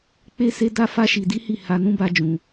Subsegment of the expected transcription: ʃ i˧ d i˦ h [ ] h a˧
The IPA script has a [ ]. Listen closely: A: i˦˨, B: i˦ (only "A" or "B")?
A